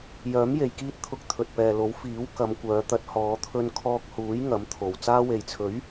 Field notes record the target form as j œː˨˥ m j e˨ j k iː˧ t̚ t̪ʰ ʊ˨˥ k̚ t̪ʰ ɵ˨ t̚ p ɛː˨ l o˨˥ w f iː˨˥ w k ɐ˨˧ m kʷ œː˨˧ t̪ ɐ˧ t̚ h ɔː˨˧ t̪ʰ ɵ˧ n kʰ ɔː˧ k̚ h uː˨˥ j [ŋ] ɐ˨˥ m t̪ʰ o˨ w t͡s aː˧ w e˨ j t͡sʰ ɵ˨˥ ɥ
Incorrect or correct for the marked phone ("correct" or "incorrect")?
correct